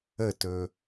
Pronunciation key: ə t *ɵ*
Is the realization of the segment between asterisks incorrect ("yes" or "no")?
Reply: no